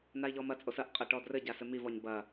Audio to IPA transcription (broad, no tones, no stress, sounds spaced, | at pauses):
n a i̯ ʎ ɔ m ɐ t͡sʼ o s ɐ ʔ qʼ ɐ ʈ ɔ d r ɘ ɟ a s ɘ m i v ɔ ɲ b ɐ